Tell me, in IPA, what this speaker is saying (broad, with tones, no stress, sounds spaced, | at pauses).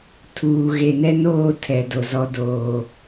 tʰ uː˨ ɣ e˨ n ɛ˦ n oː˦˨ tʰ ɛ˨ d o˨ z ɔ˦ d oː˦